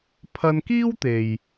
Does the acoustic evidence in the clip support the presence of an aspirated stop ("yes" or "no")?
yes